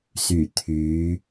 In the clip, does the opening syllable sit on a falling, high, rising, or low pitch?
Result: low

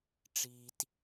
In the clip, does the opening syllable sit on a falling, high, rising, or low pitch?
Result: low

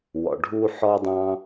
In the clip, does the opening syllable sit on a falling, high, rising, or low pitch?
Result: low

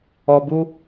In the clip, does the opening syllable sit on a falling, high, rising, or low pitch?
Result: low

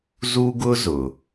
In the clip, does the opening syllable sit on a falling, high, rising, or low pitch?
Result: high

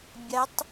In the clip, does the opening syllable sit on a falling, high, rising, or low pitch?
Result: rising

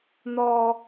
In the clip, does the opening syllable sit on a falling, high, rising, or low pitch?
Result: high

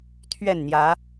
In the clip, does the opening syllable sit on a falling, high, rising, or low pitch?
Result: falling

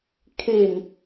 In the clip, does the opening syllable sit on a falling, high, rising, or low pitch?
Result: low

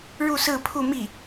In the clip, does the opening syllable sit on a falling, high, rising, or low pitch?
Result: falling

